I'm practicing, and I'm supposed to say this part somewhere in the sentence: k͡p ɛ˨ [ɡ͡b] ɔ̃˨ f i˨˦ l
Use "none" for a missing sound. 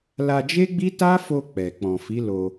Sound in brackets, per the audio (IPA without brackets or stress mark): k͡p